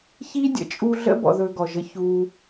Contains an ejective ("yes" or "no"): yes